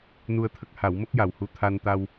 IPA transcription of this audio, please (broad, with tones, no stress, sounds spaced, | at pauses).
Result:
n u˧ ə̯ t̪ʰ ə˦˥ k̚ h a˨˩˦ w m ə˦˥ k̚ j a˨˩ w h u˧ t̪ʰ a˧ n t̪ a˧ w